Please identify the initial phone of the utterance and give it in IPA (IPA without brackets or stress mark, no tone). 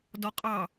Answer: d